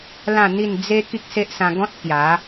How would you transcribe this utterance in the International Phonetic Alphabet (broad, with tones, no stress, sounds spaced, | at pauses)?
l ã˥˧ n̪ i˥˧ n d͡z e˦ k i˦ k̚ s e˦ ʔ s ã˧ ɡ ɔ̃˦ t̚ k j a˨˦